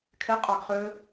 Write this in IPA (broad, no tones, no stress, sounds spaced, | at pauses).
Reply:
kʰ e qʼ ɑ ɡ χ ø